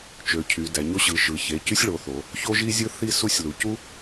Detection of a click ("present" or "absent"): absent